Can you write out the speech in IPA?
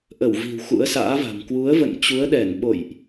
ʔ ə˧˩ w v i̤˨˩ w x ṵ˧˥ ə̯ s a̰ː˧˥ v a̤˨˩ m k w u˨˦ ə̯ v ə̰˧˨ n t͡ɕ u˨˦ ə̯ ɗ ɛ˧˩ n ɓ o̰˧˨ j ʔ

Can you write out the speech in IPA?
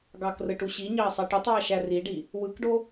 ɡ ɑ k r ɯ ʈ u ɕ i ɲ ɑ ɐ̯ sˤ ɑ ʈ y tˤ w ɑ ʃ æ r i ɖ i | w ɯ k ɖ o

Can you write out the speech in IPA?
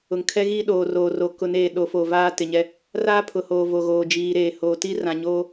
ʊ˨ ŋ kʰ ɛ˦ ɣ iː˦ ɗ oː˨ r oː˨ r o˨ k ʊ˨˦ n eː˨ ɗ o˨˦ f o˨ v aː˦ t ɪ˨ ɲ ɛ˦ | r aː˦ pʰ ʊ˨ h oː˨ v o˨ ɣ oː˨ d͡ʒ iː˨ ɾ eː˨ h oː˨ t i˦ r ã˨ ɲ oː˦

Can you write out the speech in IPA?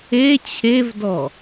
e t͡ɕʰ e v d ɔ

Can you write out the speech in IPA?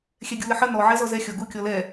xʲ ɛ ɡʲ u l ə ħ ə n ɔ ʕ ɛ z ɔ z ɛ xʲ ɔ ɡ u kʲ ɔ l ɛ

